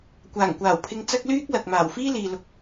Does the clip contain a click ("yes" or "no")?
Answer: no